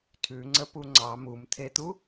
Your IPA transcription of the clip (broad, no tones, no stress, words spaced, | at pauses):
tʰʉŋ͡ǀəpu ŋ͡ǀɑ mumt̪ʰet̪u